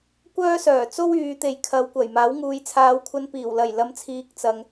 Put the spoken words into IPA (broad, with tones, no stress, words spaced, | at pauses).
kʷœː˥sœː˨˩t͡so˥w yː˨˧t̪e˨˧jkʰɐ˨˧w kʷɐ˨˩j maː˨˥wŋuː˨j t͡sʰaː˨˧wkʷʰɐ˧n piː˨˩wlɐ˨˩j lɐ˨˧mt͡sʰiː˨k̚ t͡sɐ˨ŋ